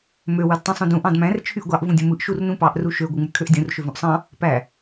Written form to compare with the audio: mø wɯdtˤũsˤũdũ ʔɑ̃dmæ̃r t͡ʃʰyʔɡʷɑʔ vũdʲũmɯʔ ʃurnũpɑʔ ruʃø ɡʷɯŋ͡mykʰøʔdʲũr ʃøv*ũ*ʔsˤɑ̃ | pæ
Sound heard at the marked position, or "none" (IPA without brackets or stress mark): ũ